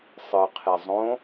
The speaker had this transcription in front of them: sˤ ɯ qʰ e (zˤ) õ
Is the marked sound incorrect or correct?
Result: correct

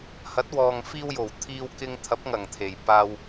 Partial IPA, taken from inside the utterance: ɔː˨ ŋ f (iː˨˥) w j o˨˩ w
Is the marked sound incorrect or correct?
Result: incorrect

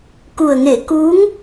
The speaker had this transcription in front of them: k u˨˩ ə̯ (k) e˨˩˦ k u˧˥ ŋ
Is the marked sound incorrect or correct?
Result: incorrect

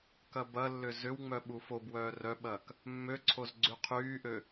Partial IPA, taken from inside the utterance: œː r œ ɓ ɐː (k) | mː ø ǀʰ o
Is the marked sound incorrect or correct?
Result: correct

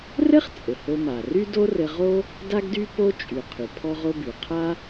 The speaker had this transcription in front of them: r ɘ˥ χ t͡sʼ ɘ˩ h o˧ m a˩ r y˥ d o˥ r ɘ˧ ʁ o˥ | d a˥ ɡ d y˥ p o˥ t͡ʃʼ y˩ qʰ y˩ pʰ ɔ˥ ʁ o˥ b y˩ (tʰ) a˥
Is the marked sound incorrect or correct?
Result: incorrect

